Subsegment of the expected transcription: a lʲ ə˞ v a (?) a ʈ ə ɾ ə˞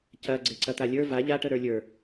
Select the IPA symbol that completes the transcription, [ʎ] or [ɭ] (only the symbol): ʎ